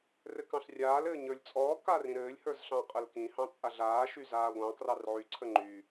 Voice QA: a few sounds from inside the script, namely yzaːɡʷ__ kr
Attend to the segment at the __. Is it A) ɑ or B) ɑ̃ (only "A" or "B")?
B